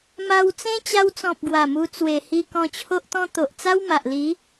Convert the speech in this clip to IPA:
m a˧ w t͡s ẽ˦ t͡ɕ a˧ w t͡s ɔ̃˨ p̚ ɡ w a˨˩ m u˧ t͡s w e˨˩ h i˧ k ɔ̃˧ t͡ɕʰ o˦ ʔ t̪ ɔ̃˦ t̪ o˨ ʔ t͡s a˦ w m a˨ ʔ l i˨˦

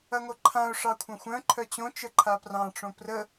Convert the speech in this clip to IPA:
ɐ ŋ o ǃʰ ã ʊ̯ ʂ ɑ kʷʰ ɐ̃ xʷ œ̃ ǃʰ œ t͡ɕ õ t͡ʃ ə ǃʰ a p r ɑ̃ ʈ͡ʂ õ p r ə

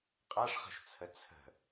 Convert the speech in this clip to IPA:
qʼ a ʂ χ ə̤ ʃ t͡sʰ ə t͡sʰ ə̤

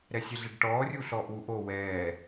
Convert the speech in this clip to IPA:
ɾ ɛ sʲ ɛ ɮ e ɖ ʈ ɔː rʲ u ɬ ɔː ʔ w u ʔ o w ɛː

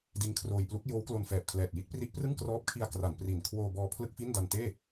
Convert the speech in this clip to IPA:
d i˦˥ n kʰ r oː˧ j p l u˦˥ k̚ j oː˦˥ w k l o˧ n f ɛː˨˩ p̚ kʰ l ɛː˨˩ t̚ j i˦˥ t̚ p r i˦˥ ʔ p r ɯ˥˩ ŋ k r ɔː˦˥ p̚ kʰ i˧ a̯ k r a˩˦ n p r i˨˩ n kʰ w oː˧ b ɔː˧ pʰ l ɯ˥˩ k̚ f i˥˩ n d a˧ n t eː˥˩

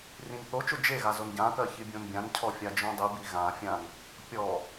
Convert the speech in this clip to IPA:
r ĩ n θ o t͡ʃ o d͡ʒ e ɣ a z o n ɟ ã k ɜ ç i bʲ õ n bʲ ã n cʰ ɔ fʲ a d͡ʒ õ dˤ i b i ɣ ã fʲ ã n | pʲ ɔ

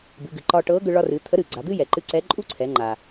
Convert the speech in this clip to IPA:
b ɨ˩˧ ɡ ɨ˩ ǃ ɒ˧ ʈ ɤ˧˥ ɡ ʏ˧ ɭ ɒ˧ r ɨ˩˧ t̪ʰ ə˧˥ ɾ ɨ˩ ɡ͡ǀ a˩˧ d̪ ɨ˥ j ɛ˩ ǃ ɨ˧˥ ǀ ɛ˧˥ ǃʼ u˥ ǀʰ ɛ˩˧ ŋ͡ǃ a˩

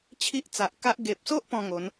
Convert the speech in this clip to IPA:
t͡ɕʰ i˦ ʔ t͡s a˨ ʔ k a˦ ʔ ɡ e˨ p̚ s o˦ ʔ p ɔ̃˥˧ ŋ o˨˦ n

